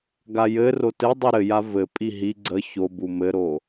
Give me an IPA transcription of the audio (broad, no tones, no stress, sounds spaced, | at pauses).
ɡ a j ɘ r o t ɘ dˤ u ɾ ɘ j a v ɘ pʼ i ɦ i ɡ͡ǀ ə ç o b u m ɘ ɾ o